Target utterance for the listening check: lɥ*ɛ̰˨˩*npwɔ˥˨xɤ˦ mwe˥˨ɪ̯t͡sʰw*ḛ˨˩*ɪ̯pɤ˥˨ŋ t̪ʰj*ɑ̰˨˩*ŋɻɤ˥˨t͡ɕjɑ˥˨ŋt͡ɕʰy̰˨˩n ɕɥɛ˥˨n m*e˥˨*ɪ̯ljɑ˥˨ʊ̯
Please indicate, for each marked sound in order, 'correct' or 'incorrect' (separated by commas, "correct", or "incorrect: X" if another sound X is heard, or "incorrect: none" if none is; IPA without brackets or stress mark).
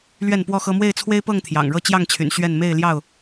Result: incorrect: ɛ˥˨, incorrect: e˦, correct, correct